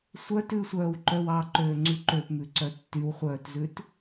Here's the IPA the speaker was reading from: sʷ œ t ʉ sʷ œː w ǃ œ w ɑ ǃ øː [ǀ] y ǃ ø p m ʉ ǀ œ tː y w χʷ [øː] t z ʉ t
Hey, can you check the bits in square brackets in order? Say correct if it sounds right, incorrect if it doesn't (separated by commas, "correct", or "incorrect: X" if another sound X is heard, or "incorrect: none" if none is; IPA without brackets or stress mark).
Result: incorrect: ŋ͡ǀ, incorrect: œː